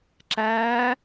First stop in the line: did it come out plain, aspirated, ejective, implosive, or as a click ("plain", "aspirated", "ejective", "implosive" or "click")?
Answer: click